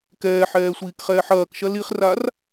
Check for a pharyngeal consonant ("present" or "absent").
present